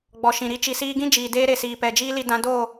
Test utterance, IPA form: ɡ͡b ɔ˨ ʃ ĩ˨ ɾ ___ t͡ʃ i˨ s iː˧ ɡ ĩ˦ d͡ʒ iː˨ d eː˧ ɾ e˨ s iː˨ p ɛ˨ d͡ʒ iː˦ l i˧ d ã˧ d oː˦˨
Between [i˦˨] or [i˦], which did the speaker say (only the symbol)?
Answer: i˦